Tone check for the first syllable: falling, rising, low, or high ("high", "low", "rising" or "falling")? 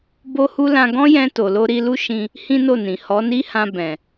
high